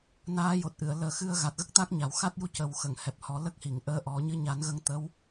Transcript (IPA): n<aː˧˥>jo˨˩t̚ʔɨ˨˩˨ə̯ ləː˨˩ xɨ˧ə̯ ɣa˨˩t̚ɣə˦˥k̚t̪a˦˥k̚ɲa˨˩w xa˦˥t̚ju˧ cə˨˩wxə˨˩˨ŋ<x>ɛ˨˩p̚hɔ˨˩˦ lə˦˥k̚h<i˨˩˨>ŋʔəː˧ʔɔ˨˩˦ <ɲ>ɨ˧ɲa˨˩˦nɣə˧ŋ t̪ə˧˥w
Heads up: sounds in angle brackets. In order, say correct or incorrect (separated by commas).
correct, incorrect, correct, correct